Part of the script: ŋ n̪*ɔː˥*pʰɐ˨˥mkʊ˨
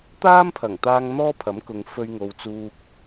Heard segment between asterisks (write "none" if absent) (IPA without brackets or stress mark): ɔː˥